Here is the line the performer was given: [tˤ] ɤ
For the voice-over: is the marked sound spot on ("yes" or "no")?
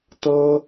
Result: no